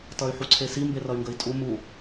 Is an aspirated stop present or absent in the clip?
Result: present